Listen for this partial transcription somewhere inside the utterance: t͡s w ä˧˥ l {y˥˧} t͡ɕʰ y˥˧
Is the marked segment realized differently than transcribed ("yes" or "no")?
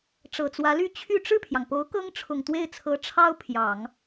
no